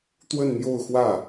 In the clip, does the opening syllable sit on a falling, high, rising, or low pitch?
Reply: falling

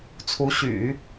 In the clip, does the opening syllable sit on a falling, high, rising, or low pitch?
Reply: rising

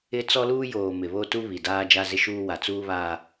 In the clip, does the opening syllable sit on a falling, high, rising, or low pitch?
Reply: high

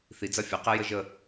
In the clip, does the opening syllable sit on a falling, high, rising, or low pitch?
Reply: rising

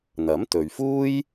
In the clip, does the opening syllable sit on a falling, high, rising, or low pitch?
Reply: rising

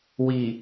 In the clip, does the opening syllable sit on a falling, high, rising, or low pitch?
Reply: low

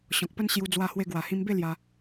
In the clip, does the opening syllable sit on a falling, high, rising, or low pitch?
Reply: low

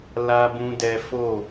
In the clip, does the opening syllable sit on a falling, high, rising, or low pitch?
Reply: high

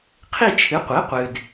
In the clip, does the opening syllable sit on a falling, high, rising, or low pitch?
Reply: falling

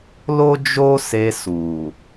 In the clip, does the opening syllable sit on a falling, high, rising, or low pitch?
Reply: high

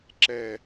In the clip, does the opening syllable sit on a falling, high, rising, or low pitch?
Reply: high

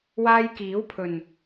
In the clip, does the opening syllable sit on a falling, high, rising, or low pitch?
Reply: high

